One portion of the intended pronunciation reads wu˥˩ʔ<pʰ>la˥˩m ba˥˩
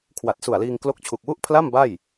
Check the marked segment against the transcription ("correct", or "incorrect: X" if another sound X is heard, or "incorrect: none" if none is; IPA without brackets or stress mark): correct